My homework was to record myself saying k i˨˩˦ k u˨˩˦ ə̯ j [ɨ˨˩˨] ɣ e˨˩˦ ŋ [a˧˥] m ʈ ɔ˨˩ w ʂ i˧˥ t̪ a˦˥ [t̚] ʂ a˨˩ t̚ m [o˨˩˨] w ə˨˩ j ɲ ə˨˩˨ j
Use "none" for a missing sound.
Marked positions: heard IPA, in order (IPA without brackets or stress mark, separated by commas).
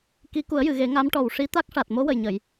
ɨ˨˩˨, a˧˥, k̚, o˧˥